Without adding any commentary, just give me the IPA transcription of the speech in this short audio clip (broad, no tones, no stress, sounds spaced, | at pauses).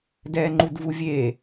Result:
d ɛː ŋ͡ǃ u d v u vʲ e